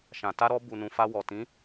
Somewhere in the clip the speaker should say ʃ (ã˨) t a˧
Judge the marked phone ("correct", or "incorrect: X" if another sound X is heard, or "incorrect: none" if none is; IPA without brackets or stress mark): correct